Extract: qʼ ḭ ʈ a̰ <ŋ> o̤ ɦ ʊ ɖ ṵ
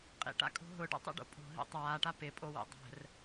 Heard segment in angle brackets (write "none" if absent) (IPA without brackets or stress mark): kʼ